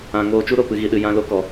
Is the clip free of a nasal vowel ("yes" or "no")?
no